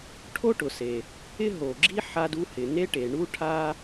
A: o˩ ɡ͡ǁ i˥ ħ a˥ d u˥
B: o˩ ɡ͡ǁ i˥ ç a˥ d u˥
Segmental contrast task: A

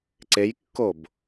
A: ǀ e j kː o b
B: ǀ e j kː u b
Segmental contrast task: A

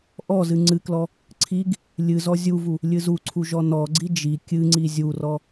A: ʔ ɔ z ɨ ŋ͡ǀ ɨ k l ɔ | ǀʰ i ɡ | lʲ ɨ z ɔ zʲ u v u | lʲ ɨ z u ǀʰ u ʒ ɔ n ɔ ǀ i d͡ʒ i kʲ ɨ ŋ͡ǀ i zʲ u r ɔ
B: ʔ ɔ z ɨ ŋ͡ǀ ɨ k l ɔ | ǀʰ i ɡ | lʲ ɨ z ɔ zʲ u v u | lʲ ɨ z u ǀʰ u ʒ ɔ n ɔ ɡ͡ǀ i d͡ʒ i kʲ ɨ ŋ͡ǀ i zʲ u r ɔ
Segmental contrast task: B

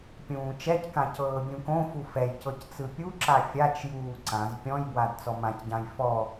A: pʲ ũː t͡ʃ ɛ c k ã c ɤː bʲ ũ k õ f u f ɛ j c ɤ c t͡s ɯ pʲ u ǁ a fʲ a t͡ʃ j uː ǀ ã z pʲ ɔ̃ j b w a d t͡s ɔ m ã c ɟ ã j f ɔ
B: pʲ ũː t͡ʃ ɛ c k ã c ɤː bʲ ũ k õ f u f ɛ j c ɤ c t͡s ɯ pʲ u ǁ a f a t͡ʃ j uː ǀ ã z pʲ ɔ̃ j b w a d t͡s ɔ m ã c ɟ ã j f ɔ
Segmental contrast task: A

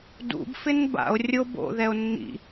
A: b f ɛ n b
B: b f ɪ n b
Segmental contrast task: B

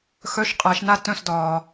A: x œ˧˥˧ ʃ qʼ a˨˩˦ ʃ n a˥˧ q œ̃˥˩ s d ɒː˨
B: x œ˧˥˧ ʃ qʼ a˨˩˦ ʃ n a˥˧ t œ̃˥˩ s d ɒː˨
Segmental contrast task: B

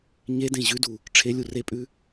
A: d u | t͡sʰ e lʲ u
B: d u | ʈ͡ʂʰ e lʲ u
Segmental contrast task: B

